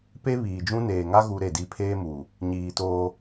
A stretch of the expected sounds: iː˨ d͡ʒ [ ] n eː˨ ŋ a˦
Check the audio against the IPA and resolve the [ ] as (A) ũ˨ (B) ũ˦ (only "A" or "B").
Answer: B